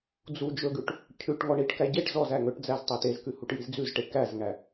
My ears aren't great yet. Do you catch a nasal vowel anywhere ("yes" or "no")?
no